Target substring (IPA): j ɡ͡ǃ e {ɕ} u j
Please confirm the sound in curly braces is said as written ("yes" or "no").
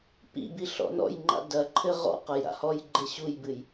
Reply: yes